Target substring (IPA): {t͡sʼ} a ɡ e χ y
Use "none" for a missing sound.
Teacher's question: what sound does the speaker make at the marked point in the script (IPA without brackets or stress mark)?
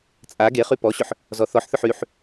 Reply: t͡sʼ